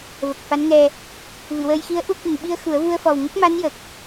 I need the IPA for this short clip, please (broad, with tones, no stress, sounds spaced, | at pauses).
v ə˨˩ k̚ f a˧˥ n ŋ ɛ˧ | v ɨ˨˩˨ w əː˧ j x i˧˥ ə̯ ʔ u˧ k ɨ˨˩ ŋ ɓ i˧ ə̯ x u˨˩˦ ə̯ v u˧ ə̯ f ɔ˨˩ w ŋ ə˦˥ k̚ m a˧˥ n j ə˨˩ k̚